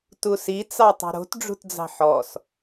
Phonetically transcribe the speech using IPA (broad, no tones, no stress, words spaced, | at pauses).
tusi t͡sɑtˤi̤ɾo̤t ɖ͡ʐṳtd͡zɑ̤ħɔs